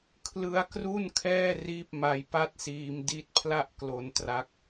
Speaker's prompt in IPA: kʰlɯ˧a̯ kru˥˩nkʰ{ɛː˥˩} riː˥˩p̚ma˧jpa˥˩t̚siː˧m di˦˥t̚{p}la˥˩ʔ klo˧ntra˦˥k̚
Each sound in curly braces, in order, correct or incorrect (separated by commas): correct, incorrect